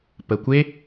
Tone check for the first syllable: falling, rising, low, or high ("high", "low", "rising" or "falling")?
low